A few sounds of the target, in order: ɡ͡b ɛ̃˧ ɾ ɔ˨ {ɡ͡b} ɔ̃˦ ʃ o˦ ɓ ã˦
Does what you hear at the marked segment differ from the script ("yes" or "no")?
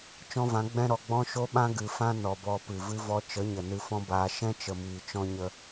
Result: no